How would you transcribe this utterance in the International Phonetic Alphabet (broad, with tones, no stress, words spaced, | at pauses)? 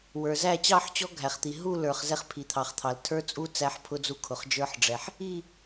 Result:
wə˞˩zæ˥˧ t͡ɕɑ˥˧ħt͡ɕɔ˦˥ɡʱæ˩χt̪i˩ ɦu˥˧lə˞˩χ zɛ˥˧χpʰi˩t̪ʰɑ˩χt̪ʰɑ˩l tʰə˞˦˥t͡sʼu˦˥ t͡sæ˦˥ħpʰʊ˦˥d͡zu˦˥ kʰʊ˩χd͡ʒə˞˦˥ħɖ͡ʐɛ˩ħ | i˥˧